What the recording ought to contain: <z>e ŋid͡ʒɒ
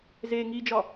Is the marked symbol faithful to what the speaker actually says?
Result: yes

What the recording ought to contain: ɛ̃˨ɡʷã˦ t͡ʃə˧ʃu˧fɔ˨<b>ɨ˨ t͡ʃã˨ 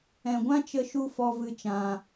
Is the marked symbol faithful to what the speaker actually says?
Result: no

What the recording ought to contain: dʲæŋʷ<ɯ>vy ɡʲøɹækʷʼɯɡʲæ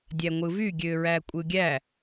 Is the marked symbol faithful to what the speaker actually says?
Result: yes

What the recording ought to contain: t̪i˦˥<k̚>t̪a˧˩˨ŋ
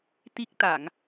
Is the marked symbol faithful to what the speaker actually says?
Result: yes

